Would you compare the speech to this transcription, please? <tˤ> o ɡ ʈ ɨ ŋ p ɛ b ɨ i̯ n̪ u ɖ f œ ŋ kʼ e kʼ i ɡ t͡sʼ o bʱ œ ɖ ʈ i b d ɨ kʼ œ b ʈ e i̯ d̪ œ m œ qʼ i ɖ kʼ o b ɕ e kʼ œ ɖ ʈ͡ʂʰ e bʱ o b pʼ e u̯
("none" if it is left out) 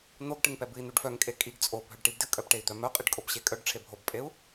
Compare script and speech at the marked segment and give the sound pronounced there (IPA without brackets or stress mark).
n̪